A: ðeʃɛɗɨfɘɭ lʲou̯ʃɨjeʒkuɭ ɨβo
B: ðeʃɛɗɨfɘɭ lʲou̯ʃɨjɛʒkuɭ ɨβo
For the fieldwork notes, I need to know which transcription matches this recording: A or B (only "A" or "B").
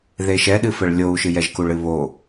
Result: B